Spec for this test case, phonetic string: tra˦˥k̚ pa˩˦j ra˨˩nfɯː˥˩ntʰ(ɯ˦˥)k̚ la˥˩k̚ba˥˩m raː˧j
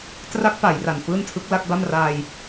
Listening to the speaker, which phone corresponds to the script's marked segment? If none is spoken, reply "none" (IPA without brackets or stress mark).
ɯ˦˥